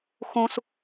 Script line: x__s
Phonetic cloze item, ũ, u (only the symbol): ũ